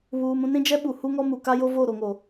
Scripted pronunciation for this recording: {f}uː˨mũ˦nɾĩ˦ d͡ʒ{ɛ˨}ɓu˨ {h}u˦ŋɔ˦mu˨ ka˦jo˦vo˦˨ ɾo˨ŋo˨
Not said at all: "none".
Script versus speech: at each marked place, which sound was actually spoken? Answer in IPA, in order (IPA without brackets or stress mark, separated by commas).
β, ɛ˦, h